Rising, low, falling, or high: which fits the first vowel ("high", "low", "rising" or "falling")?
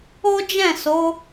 high